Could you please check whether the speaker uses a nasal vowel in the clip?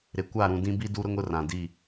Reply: yes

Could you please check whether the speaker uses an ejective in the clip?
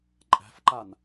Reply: yes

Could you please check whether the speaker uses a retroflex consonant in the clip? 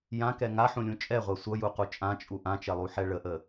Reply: yes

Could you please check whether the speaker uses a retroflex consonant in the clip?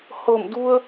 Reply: no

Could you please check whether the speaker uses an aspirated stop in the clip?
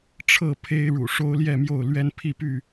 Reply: yes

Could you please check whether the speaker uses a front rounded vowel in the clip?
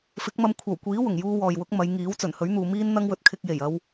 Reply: no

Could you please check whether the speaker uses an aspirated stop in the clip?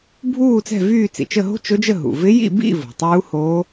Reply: no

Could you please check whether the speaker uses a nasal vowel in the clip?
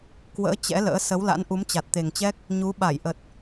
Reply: no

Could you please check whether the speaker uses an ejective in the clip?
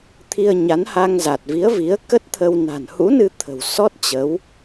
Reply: no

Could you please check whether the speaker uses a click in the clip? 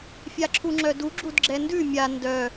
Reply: yes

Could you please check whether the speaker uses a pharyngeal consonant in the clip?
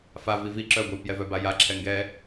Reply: no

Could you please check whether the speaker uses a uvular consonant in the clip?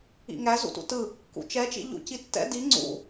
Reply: no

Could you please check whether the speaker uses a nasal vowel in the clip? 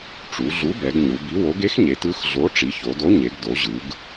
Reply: no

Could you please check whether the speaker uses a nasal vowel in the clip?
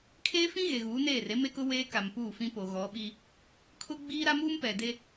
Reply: yes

